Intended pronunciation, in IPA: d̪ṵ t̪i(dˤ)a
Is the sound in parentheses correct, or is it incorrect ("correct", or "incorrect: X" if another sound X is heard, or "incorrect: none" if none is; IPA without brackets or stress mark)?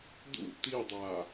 correct